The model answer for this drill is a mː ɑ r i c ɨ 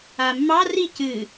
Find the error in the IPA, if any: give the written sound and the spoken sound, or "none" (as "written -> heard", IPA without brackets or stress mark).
none